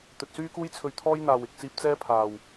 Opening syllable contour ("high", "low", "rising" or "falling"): low